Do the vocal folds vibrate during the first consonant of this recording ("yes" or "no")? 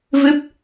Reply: yes